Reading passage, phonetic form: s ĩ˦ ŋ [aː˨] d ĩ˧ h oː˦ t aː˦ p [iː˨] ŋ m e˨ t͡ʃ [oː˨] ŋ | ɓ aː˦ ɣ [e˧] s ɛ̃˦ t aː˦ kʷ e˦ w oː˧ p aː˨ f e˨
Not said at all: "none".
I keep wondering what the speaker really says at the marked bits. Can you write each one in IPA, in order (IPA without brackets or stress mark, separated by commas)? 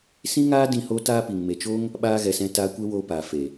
aː˦, i˨, oː˦, ɛ˧